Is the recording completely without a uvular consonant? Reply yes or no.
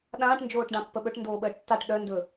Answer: yes